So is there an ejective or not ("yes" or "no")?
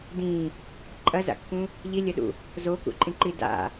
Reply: yes